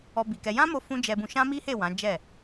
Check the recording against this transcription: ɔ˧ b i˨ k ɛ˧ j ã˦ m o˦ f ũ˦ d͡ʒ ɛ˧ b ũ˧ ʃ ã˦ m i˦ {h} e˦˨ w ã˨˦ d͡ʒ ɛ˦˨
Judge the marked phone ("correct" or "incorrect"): correct